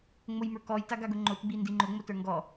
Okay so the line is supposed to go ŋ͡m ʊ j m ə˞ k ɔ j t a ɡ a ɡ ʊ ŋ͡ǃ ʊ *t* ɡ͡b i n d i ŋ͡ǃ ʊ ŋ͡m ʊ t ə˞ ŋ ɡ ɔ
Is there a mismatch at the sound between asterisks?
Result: no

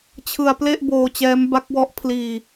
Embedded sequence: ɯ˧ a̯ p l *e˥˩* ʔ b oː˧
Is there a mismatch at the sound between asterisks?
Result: no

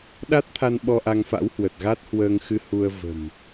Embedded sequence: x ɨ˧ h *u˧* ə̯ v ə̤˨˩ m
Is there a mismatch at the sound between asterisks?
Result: no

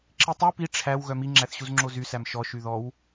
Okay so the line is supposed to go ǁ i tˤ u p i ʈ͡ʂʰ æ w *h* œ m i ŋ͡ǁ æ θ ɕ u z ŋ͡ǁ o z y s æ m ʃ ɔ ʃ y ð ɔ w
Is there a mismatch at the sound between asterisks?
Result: yes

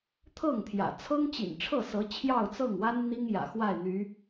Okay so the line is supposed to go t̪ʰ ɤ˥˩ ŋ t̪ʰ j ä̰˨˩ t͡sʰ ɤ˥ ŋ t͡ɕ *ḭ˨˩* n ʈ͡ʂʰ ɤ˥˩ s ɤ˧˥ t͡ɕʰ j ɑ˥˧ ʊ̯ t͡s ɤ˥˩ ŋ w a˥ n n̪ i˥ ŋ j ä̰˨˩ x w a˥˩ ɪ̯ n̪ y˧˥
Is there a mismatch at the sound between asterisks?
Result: no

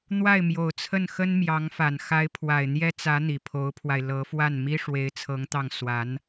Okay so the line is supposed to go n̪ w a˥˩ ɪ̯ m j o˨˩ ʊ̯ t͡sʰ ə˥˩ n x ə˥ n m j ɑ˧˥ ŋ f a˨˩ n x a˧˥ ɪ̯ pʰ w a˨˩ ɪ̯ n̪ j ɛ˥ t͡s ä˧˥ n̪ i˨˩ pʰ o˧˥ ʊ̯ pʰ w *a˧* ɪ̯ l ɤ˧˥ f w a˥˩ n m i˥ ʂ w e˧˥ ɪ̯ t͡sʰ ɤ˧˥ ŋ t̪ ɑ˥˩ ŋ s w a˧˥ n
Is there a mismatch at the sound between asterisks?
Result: no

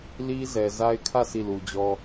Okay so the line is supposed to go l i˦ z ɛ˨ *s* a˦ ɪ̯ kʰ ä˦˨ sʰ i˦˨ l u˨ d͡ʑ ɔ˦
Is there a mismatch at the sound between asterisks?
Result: yes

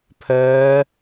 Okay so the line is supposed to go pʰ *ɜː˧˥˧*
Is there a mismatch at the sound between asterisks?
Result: yes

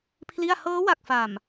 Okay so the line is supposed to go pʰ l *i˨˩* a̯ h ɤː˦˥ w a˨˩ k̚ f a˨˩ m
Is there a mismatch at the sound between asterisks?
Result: yes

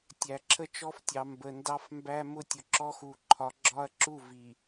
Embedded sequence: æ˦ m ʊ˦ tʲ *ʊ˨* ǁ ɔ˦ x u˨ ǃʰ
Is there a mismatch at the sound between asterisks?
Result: no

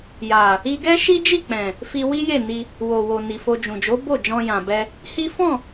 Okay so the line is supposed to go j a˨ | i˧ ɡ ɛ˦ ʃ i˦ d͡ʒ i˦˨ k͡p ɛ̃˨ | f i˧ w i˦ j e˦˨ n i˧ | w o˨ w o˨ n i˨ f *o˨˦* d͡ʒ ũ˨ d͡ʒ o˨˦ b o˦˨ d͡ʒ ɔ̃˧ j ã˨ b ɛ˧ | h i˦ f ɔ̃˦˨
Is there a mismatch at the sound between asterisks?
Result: yes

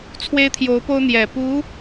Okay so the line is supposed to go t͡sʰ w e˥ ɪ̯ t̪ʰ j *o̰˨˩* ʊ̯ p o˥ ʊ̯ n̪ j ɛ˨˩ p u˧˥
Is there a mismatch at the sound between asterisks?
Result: yes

